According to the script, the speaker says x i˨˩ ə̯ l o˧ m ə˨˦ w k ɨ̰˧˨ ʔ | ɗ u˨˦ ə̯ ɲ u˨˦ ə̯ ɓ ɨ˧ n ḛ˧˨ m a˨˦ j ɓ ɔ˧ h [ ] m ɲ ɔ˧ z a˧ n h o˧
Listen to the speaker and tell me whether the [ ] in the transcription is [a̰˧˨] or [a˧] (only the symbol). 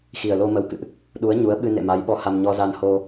a˧